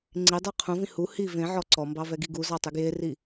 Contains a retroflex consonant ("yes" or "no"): no